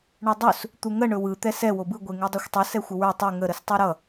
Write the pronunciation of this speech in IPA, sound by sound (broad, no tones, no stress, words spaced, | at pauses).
ɳɯdˤɵs | t̪uŋə ɳɵwɯ t̪ɛsɛ wobɯ ɡʷeŋudˤɛxʷtˤʌ sɛxʷəwə˞ tˤɯ ŋə ɾəstˤɯɾʌ